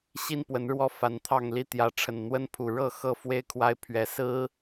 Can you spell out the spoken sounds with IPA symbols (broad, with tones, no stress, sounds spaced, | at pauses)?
ɕ i˦ n p w ə˨˦ n ɻ w ɔ˦ f a˨˦ n t̪ʰ ɑ˥˨ ŋ l i˦ t̪ j ä˨˦ ʈ͡ʂʰ ə˨˩ n n̪ w ə˦ n pʰ u˨˩ ɻ ɤ˥˨ x ɤ˥˨ f w e˦ ɪ̯ kʰ w a˦ ɪ̯ pʰ ɥ ɛ˨˦ s ɹ̩˦